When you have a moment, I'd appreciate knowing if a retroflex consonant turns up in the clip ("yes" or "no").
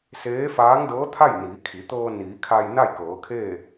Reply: no